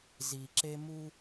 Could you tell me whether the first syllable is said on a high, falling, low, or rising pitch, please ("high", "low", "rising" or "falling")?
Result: low